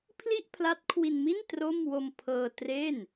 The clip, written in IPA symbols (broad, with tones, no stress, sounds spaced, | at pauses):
pʰ l i˥˩ ʔ pʰ l a˦˥ t̚ kʰ w i˧ n m i˥˩ n t r o˥˩ m w o˧ m pʰ ɤː˧ t r e˥˩ n